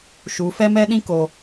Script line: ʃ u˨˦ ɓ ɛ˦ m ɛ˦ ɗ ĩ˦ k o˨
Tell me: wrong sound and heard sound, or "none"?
ɓ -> f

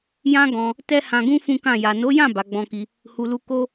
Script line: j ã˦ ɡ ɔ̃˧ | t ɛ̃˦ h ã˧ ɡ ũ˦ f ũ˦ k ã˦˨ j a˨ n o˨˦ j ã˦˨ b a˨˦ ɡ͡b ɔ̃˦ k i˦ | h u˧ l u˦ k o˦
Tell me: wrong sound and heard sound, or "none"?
ɛ̃˦ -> ɛ˦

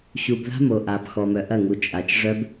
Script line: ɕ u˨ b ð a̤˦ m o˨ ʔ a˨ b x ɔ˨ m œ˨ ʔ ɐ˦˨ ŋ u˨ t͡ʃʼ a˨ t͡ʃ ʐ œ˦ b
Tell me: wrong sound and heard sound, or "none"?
none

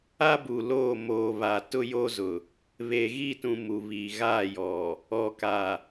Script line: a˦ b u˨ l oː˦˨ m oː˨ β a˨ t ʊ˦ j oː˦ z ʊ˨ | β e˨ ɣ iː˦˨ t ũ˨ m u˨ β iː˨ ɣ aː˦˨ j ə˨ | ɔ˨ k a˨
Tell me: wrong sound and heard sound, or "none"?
ə˨ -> ɔ˨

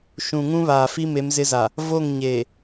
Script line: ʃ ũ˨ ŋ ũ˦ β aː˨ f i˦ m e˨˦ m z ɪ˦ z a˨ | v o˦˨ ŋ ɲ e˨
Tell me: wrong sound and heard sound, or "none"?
none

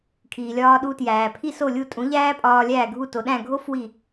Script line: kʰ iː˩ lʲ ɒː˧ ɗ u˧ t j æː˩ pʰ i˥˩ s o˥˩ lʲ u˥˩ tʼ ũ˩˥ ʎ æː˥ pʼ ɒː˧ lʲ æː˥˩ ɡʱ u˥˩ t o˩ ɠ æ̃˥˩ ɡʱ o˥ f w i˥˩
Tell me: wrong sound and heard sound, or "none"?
ɠ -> ɗ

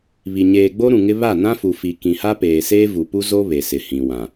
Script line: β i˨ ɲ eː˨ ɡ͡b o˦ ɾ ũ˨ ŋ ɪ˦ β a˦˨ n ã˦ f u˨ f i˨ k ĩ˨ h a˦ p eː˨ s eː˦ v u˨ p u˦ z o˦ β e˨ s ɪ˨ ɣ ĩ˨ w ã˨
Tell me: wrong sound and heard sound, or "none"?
ɣ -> h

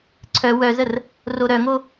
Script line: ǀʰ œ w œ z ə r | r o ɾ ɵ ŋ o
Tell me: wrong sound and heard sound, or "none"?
ɵ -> œ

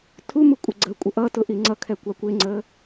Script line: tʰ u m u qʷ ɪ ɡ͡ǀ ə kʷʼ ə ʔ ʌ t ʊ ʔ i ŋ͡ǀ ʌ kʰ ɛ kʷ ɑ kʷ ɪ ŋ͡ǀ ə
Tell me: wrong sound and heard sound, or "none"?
qʷ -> kʷʼ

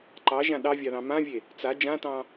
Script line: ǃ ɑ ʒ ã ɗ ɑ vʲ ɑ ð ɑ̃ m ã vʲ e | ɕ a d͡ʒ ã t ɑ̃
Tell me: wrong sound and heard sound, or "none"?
ɕ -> t͡s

